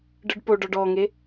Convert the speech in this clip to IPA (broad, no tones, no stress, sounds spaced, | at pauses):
ɖ ɯ ɖ p o ɖ ɔ ɖ ɔ ŋ e